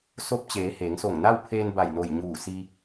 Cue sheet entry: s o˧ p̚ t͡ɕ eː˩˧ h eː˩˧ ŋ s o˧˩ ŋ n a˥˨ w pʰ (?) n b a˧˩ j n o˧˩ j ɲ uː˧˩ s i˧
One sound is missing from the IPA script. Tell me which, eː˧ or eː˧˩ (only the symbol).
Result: eː˧